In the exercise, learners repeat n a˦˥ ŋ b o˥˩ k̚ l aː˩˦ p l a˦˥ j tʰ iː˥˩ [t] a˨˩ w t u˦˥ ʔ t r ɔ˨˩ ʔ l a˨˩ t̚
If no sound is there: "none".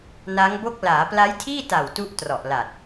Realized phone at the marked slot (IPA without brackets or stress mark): t